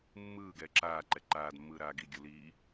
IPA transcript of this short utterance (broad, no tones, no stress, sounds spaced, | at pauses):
mː ɯː ɡ ɛː ǁ aː ǃ ɛ ǃ aː d mː ɯː ɾ aː ɡ i ɡʲ u l iː